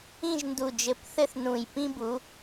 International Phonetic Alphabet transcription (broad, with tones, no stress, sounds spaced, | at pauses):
ĩ˥˧ ʒ n d u˧˩ d͡ʒ ɘ˧˩ p θ ɘ˥ θ n ũ˧˩ j p ĩ˥ b u˨˥